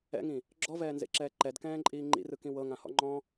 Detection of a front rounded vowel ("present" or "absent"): absent